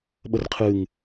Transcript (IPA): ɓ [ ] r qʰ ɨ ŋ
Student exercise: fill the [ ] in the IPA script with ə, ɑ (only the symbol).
ə